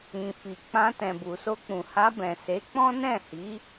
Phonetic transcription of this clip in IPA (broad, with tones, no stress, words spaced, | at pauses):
ĩ˨fi˨k͡pã˧ tɛ̃˨bu˨so˧k͡pũ˨ ha˧bɛ̃˨ se˨˦k͡pɔ̃˦nɛ̃˦˨hi˨˦